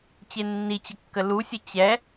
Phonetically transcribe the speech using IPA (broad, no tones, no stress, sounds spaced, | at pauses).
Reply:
t͡ɕ e nː i t͡ɕ ə kː ə l u sʲ ə t͡ɕ ɛ